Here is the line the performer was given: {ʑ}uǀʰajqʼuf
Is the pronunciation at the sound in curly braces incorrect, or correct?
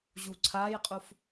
correct